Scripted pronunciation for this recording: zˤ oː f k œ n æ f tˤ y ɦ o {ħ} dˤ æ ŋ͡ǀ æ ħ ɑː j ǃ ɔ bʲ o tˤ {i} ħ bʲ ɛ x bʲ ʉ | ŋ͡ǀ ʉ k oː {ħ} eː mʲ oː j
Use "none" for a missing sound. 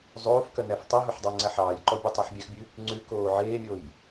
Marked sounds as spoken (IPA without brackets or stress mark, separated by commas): ħ, y, ʕ